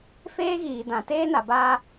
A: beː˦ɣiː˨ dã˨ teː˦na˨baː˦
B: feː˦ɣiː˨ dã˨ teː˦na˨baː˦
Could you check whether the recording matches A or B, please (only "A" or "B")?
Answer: B